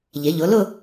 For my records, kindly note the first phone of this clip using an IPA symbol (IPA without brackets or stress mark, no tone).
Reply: ʎ